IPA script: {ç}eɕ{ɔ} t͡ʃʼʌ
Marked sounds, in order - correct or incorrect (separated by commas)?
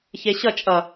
correct, incorrect